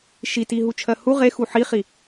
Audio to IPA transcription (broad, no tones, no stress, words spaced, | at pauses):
ʃiti ɦut͡ʃʰɜhu ʁexu ħiχi